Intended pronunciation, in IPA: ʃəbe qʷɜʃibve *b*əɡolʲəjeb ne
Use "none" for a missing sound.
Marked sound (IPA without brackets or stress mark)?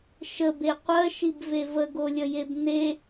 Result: v